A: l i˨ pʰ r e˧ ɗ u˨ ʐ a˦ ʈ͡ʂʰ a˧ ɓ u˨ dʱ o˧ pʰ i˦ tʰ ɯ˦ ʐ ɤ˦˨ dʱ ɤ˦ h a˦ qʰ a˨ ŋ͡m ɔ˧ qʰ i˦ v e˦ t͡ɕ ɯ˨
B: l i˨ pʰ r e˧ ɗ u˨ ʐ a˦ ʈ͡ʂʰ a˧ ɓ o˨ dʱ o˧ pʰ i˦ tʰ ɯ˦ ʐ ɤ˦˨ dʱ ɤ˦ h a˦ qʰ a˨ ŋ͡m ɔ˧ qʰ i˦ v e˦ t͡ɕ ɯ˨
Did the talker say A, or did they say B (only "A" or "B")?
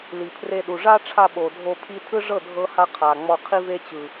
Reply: B